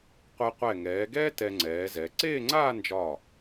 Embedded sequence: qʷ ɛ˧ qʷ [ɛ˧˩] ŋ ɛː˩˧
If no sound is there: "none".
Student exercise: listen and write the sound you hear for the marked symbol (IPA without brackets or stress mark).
ɛ˧˩